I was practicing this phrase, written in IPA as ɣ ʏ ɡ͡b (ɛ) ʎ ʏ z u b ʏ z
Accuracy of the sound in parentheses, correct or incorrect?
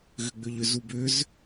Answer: incorrect